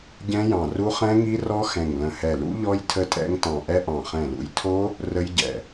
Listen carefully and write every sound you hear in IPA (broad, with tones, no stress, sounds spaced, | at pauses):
ɟ ɛ̃˦˥ j ɑ̃˧˩ r u˦˥ χ ɛ̃˦˥ ŋ i˦˥ r ɔ˦˥ x ɛ̃˧˩ ŋ l ə̃˧˩ h ɛ˧˩ l ṵ˦˥ ʎ ɔ˦˥ j tʰ ə˦˥ tʼ ɛ̰˦˥ ŋ t ɑ̃˧˩ ʔ ɛ˦˥ ʔ ɑ̃˧˩ χ ɛ̃˧˩ l ṵ˧˩ j tʰ o˦˥ | r ə˦˥ j ɟ ɛ̰˧˩